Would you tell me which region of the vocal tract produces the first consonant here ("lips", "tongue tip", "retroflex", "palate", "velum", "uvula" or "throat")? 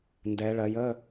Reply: tongue tip